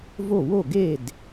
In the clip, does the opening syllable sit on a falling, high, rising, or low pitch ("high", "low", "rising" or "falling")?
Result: falling